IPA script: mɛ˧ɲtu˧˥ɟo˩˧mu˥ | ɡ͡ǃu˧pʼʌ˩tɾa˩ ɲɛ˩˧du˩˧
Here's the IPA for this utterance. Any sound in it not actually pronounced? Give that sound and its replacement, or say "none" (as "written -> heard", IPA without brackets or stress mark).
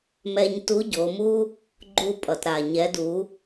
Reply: none